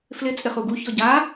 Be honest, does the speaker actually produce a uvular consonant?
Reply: yes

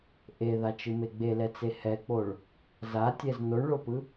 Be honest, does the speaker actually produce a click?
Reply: no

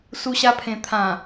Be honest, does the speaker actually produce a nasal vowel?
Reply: yes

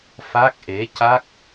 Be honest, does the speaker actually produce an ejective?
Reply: no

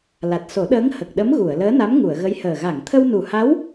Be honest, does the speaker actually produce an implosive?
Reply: yes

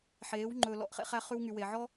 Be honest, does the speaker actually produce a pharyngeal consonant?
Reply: yes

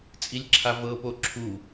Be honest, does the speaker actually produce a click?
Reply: yes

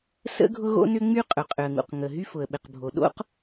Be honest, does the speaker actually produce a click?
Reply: no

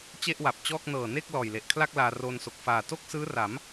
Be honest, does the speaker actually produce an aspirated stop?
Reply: yes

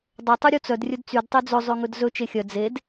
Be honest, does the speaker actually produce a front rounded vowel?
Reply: yes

